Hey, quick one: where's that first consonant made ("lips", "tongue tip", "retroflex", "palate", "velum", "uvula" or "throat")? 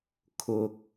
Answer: velum